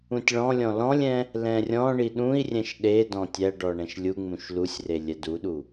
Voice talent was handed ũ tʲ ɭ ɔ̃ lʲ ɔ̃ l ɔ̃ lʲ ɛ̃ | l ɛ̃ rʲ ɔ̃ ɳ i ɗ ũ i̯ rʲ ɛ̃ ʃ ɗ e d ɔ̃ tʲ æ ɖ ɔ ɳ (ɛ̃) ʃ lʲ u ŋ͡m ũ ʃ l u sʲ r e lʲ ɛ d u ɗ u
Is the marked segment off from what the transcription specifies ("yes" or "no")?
no